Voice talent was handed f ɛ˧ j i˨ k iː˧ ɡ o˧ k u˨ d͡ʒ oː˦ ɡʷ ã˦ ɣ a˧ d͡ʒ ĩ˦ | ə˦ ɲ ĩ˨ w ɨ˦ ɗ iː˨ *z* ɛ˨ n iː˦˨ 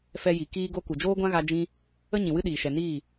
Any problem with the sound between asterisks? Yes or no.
yes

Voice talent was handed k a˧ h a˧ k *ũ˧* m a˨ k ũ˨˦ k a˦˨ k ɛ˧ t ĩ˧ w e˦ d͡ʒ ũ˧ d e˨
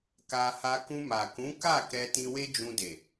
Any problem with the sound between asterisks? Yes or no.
no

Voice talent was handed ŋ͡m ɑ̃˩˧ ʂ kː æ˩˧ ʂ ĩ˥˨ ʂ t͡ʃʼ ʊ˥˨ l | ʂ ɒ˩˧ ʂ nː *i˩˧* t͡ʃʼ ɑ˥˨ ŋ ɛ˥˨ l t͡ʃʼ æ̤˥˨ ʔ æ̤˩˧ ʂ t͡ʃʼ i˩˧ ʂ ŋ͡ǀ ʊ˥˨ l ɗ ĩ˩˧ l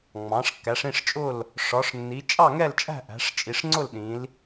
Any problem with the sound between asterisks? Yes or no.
no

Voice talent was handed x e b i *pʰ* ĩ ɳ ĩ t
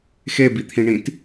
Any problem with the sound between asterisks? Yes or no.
yes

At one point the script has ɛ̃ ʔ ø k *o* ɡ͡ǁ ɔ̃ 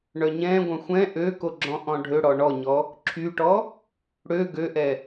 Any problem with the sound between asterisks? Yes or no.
no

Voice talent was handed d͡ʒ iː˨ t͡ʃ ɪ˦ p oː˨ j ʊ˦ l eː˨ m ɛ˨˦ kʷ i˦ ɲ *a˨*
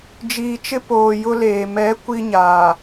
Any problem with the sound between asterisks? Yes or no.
yes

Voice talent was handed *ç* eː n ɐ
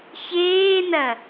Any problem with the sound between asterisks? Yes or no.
no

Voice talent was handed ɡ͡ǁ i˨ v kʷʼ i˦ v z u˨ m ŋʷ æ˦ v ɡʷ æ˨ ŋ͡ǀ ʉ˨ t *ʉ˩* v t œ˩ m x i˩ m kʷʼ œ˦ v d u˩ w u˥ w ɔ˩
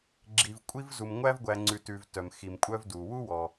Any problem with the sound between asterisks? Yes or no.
yes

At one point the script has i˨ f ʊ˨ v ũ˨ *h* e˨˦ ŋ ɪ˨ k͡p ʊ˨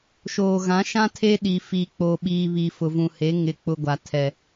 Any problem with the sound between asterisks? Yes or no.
no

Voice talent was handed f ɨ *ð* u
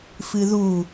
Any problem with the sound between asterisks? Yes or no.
no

